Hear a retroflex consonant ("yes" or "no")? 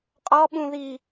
no